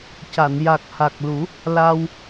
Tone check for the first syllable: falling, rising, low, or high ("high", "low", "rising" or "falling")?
low